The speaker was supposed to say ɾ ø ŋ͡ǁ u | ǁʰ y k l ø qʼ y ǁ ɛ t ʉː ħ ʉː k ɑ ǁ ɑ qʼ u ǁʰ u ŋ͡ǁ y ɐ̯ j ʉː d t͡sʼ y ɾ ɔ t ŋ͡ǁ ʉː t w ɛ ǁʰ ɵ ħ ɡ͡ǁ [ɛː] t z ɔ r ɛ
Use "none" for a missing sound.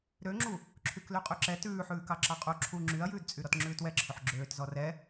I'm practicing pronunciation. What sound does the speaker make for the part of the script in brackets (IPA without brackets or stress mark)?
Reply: øː